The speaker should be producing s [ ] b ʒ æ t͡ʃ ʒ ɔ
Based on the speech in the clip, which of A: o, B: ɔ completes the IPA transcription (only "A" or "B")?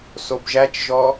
A